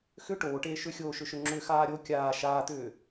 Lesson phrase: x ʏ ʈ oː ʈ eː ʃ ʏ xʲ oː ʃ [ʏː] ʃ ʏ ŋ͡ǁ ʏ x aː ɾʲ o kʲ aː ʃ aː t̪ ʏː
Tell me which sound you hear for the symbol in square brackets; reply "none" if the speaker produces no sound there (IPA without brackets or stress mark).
ʏ